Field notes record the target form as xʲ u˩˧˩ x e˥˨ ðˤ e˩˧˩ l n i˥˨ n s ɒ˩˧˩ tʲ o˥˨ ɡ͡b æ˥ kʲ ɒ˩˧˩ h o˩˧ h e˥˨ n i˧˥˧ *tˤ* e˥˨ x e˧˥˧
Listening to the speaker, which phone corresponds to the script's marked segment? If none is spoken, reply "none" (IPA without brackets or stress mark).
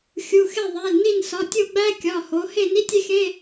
tʲ